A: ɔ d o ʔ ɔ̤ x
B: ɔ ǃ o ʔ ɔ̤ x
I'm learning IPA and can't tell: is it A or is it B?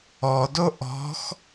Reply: A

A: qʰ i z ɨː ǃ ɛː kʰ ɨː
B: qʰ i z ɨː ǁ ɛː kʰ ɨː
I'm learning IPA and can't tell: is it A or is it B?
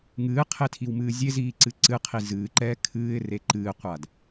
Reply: A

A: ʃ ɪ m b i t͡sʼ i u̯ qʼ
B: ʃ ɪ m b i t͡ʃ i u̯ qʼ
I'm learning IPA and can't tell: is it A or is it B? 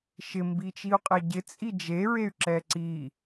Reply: B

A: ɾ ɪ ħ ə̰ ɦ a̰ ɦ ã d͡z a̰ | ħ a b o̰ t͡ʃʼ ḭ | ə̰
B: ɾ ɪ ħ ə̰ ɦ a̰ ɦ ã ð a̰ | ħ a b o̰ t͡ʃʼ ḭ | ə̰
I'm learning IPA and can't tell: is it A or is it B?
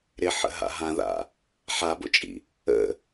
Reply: B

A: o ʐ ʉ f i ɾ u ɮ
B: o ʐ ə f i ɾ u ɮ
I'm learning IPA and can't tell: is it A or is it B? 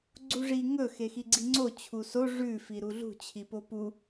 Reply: A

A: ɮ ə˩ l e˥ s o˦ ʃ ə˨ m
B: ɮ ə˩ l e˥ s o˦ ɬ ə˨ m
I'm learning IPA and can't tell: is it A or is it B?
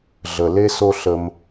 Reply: B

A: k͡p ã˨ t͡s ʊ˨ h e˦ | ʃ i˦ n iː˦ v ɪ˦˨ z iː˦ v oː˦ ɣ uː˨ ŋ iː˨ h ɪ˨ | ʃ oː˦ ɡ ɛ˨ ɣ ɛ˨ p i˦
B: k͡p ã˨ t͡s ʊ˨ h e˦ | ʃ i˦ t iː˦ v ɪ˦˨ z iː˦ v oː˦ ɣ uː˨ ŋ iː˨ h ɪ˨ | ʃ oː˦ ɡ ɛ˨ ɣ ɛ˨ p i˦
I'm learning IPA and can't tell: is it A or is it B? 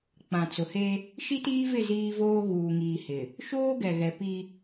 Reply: B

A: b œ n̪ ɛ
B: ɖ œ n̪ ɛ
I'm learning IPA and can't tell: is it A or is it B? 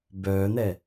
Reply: A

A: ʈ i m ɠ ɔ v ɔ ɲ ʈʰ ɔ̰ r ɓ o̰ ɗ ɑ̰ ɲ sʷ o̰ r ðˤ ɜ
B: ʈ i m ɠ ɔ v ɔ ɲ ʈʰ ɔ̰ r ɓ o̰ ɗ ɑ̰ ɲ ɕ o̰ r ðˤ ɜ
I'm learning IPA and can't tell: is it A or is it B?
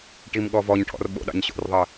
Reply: B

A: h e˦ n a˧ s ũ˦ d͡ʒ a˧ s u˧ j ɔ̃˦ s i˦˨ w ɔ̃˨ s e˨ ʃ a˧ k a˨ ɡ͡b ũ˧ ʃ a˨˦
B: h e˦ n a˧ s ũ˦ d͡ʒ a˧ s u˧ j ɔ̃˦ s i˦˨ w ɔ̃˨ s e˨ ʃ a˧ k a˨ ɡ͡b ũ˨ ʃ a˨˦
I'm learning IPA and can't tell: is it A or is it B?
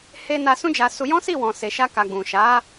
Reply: B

